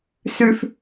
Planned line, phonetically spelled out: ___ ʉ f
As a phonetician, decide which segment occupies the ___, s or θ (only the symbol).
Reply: s